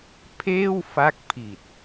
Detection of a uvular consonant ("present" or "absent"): absent